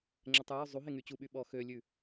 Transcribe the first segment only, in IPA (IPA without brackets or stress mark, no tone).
ŋ͡ǁ